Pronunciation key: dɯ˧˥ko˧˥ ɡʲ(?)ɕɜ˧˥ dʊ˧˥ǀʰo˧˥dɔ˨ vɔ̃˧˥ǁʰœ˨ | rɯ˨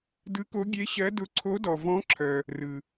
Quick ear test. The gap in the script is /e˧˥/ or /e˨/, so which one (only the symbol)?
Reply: e˧˥